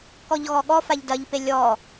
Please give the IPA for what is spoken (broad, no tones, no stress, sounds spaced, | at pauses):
k ɔ ʎ ɣ ɔ ɠ ɔ f a ʎ d ɐ ʎ p e lʲ ɔ